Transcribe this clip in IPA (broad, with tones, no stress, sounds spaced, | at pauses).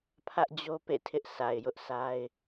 pʰ ä˦ ʔ d͡ʑ o˦ p ḛ˦˨ tʰ ɪ˦ ʔ sʰ a˨ ɪ̯ j ʊ˦ ʔ sʰ a˦ ɪ̯